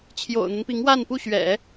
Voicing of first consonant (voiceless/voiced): voiceless